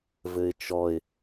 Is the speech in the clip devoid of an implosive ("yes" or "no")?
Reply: yes